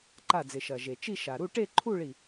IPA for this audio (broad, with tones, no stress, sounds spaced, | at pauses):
ǃ a˧˩ d͡z ɪ˩ ʃ ɐ˩ ʒ e˩ t͡ʃ i˥˧ ʃ a˩ ɾ u˥˧ ʈ e˥˧ ǃʰ u˥˧ ɭ i˧˩